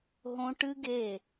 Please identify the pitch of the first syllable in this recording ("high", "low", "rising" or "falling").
high